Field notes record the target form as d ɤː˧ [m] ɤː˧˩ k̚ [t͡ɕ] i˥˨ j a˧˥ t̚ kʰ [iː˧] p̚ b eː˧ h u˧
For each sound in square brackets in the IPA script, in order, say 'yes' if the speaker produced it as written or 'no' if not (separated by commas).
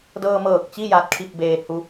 yes, yes, no